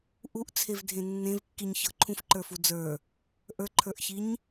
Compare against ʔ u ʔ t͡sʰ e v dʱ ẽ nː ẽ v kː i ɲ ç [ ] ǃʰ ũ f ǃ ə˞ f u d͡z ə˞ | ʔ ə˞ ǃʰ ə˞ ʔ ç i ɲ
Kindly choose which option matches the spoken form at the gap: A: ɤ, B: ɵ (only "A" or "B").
A